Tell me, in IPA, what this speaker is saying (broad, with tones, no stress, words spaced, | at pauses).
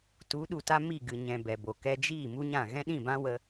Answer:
tu˨˦ɗu˨ta˦ mi˦˨ɡɨ˨ɲɛ̃˨ bɛ˨bo˨ kɛ˧d͡ʒiː˦˨ mu˦ɲã˦˨ ɣɛ̃˦ɗĩ˦˨bã˦ wə˧